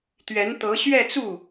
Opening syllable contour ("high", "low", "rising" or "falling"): rising